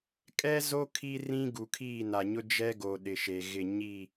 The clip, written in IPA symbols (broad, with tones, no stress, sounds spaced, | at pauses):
kʼ ɛ˦ z o˦ kʰ i˦ r ĩ˦ ɡ u˨ kʰ iː˦˨ n a˨ ɲ ʊ˦ d͡ʒ ɛ˦ ɡ o˨ ɗ ɪ˨ ʃ e˨ ɣ ɪ˦˨ ɲ i˦˨